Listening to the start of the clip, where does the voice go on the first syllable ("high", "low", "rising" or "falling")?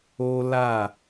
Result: high